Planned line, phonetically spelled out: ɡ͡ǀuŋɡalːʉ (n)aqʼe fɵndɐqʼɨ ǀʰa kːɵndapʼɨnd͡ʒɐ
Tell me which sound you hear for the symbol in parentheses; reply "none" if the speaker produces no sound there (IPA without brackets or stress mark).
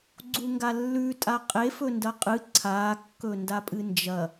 tʼ